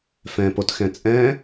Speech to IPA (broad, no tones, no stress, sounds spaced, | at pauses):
f ɛ̃ p o t x ɛ̃ t͡sʼ ɛ̃